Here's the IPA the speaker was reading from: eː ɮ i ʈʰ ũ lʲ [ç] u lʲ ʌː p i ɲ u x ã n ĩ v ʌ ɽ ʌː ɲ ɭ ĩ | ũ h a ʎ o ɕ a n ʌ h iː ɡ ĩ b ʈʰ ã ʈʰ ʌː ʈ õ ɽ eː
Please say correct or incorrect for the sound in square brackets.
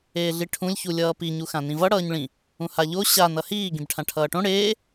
correct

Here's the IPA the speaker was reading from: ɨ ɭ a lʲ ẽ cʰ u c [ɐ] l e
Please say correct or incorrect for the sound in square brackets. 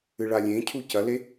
correct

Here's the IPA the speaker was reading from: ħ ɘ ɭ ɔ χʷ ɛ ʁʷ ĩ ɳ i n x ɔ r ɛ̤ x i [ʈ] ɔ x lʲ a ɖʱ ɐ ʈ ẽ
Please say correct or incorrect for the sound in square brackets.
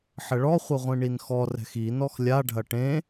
incorrect: n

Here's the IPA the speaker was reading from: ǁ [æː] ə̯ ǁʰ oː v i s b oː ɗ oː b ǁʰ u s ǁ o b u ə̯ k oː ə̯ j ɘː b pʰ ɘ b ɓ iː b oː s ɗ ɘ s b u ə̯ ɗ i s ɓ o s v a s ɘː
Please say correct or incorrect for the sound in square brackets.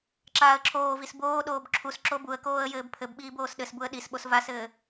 incorrect: aː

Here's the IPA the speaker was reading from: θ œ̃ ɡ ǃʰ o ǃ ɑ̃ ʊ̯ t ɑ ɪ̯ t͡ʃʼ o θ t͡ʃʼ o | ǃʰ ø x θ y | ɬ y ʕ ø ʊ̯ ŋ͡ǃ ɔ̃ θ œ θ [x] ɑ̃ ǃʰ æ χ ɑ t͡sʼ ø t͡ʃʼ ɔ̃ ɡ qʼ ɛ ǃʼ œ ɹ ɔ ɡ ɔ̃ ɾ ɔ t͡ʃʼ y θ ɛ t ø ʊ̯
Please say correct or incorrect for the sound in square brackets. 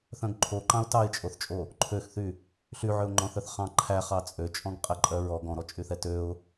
incorrect: χ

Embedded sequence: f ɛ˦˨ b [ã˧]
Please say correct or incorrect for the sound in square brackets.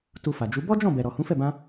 correct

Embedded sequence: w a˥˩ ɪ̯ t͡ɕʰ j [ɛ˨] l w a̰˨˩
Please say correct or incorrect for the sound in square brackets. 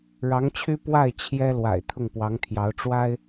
incorrect: ɛ˥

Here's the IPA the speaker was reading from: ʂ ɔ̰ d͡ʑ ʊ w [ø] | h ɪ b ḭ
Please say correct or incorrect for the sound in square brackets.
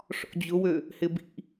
correct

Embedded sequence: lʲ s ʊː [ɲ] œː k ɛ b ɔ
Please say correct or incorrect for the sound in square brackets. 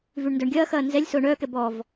incorrect: ɳ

